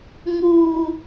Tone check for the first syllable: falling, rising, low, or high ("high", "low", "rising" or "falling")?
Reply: high